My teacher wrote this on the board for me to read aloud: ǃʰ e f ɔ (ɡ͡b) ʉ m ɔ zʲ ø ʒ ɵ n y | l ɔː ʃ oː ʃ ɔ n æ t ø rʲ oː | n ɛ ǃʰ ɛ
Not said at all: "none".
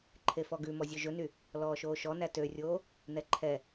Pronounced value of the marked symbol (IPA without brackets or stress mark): ɡ